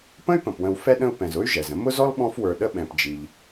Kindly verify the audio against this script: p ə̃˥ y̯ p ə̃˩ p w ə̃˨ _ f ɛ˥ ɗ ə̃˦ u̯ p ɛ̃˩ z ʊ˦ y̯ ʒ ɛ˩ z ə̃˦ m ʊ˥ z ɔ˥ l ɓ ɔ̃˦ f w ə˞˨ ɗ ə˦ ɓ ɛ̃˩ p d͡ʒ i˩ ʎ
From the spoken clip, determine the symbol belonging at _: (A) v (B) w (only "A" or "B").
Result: B